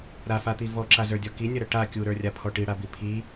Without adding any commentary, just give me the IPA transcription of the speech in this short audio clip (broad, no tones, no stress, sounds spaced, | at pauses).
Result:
ɾ a f a t̪ i v ɔ ǁ a z ə˞ dʲ ɔ k i nʲ ɐ ɾ ɐ ʈ a kʲ u ɾ ə˞ rʲ a pʰ ɔ ʈ i ɽ a b i pʰ i